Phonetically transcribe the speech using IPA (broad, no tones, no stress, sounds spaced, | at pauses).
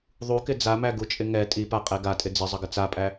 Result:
ðˤ u k ɪ d͡z a m æ ɡ u t͡ʃʼ ɪ ŋ ɛ tʼ i p a qʼ ɛ ɡ a tʼ ɪ d͡z ɪ zˤ ə ɡ ɪ t͡s a pʼ æ